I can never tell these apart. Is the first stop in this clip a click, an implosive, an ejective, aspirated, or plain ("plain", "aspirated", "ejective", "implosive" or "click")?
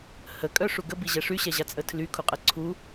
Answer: ejective